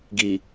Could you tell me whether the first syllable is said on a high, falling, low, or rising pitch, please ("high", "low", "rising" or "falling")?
low